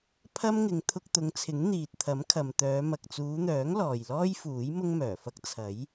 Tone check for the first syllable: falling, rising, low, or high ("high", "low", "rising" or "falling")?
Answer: high